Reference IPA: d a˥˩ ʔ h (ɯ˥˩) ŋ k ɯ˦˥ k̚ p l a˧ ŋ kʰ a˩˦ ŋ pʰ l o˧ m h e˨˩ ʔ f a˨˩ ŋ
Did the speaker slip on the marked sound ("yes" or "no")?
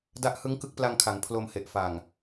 yes